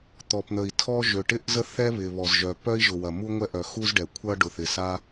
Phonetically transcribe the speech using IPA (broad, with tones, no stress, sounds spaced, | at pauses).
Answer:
t̪ ɔ˩ p n̪ ə˩ i̯ tʰ ɔ˥ ʒ ø˩ ʈ ɪ˥ ʔ z ə˥ θ ɛ˥ β ɪ˩ β ɔ˩ z ʒ œ˩ p œ˥ i̯ ʒ ʊ˩ w ɐ˩ m u˥ ŋʷ ɛ˥ ʔ œ˩ x u˥ z ɖ ɛ˩ kʷʰ ɐ˥ ɖ ʊ˩ θ ɪ˩ s a˥